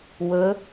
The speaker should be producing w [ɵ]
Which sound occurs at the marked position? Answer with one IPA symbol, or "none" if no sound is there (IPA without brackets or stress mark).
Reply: ɵ